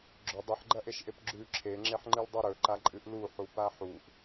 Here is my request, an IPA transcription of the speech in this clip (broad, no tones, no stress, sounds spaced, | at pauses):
ɡ͡ǁ ɵ dˤ ɨ ħ ɡ͡ǃ ɐ ʔ e ʃ ʔ e p ɡ͡ǁ ʉ ǁʰ e ŋ͡ǁ e ħ ŋ͡ǃ ɨ l dˤ ʉ ɾ ɵ ǃ a ǃʼ ɨ ʔ l u ħ u p a ħ u ʔ